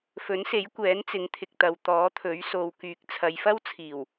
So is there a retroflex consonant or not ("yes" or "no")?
no